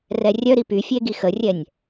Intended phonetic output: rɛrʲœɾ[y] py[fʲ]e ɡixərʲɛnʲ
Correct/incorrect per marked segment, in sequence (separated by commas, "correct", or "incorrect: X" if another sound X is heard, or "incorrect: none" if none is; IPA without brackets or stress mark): incorrect: i, correct